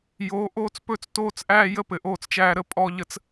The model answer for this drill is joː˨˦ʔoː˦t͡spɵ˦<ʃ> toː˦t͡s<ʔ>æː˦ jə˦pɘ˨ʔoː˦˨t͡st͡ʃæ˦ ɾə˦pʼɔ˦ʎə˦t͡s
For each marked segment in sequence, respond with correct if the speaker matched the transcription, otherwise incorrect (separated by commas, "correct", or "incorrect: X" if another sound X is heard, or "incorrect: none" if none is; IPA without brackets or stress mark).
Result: incorrect: t͡s, correct